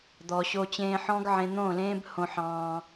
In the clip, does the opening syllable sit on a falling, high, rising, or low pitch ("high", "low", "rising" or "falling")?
low